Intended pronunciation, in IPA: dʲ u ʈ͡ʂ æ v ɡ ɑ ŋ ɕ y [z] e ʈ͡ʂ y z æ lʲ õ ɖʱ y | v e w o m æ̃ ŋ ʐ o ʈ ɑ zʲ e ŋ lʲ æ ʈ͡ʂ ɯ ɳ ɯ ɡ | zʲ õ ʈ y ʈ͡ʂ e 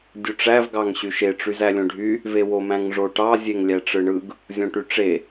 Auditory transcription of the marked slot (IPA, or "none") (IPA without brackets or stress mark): ʃ